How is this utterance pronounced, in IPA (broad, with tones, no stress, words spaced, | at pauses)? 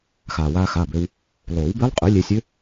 xaː˩waː˧ xaː˩˧˩bø˧w | lˠoː˨˩˦wbɪː˦˥lˠqʼœ˩˥ lʲeː˧sʲø˦˥